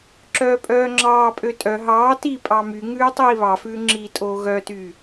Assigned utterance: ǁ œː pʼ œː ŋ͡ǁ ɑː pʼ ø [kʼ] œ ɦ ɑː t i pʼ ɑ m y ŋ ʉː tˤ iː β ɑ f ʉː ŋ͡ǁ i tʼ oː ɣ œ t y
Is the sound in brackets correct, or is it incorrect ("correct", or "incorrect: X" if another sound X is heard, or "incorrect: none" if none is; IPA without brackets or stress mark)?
incorrect: tʼ